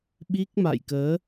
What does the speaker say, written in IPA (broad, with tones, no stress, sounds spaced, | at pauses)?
ɓ i˦˥ k̚ m a̰˧˨ j k əː˨˦